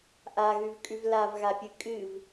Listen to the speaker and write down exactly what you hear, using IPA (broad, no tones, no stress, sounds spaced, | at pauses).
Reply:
ʔ a ɣ ʉ v kʼ ʉ v l a v ɣ a pʲ ɨ kʼ ɨ v